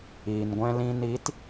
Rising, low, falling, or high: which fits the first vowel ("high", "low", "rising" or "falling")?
low